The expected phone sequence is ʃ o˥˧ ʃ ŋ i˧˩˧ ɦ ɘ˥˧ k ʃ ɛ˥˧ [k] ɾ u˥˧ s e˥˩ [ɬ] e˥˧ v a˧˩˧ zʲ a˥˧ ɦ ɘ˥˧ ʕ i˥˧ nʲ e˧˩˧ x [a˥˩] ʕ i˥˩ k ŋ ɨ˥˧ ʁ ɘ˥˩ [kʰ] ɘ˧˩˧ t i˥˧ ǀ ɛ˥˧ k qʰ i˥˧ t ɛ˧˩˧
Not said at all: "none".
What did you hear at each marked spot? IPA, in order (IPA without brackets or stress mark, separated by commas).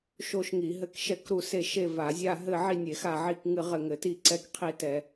k, ʃ, a˥˩, ŋ